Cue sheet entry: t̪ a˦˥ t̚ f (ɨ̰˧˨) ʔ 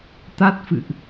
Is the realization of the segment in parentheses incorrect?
no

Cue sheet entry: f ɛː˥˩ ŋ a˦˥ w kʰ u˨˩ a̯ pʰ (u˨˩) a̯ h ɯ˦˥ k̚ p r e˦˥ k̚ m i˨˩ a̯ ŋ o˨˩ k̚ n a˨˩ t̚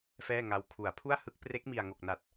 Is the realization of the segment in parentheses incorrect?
yes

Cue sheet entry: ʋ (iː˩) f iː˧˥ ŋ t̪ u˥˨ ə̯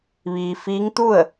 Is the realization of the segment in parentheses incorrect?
no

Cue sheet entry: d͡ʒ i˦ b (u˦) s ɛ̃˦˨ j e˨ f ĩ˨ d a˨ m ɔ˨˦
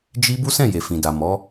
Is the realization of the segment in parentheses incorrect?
no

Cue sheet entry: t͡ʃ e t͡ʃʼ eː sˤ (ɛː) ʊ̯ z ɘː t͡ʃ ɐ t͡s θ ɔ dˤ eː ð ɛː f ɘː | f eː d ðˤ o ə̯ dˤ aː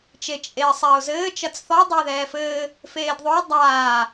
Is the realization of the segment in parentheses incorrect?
no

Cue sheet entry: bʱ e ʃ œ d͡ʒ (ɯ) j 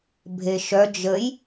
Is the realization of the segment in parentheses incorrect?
yes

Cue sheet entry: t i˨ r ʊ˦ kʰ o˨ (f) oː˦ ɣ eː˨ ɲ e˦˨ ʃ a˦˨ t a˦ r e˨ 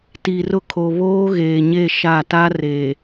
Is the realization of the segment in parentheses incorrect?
yes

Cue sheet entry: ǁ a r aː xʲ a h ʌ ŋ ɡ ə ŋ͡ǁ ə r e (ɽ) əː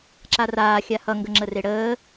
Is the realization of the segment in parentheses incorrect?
no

